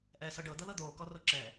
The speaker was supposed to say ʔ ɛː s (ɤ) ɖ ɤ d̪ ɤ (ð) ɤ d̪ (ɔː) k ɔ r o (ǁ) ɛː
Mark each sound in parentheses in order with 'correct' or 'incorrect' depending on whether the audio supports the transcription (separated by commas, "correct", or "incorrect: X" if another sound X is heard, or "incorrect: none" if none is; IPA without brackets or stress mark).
correct, correct, incorrect: oː, correct